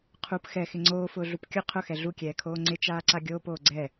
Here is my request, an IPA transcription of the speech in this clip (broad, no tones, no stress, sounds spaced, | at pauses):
qʰ u p x ɛ x ɪ ŋ͡ǀ oː f ʊː ɮ u p kʲ ʊ qʰ ʊ x ɛ ɮ u kʲ ɛː kʰ oː ŋ͡ǀ ɪ t͡ʃ aː ǀ a ɡʲ oː p oː ɡ͡ǀ ɛ